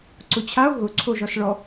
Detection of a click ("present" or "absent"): present